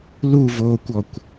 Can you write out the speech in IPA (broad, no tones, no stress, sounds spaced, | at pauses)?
l u v oː kʷ ɔ kʷ